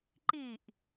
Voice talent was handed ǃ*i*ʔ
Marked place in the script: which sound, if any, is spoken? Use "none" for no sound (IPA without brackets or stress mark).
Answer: i